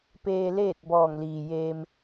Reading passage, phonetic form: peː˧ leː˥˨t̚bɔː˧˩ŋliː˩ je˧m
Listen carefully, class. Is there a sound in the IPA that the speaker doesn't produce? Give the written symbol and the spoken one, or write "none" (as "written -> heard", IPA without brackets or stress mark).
e˧ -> eː˧